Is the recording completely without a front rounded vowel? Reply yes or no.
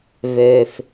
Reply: no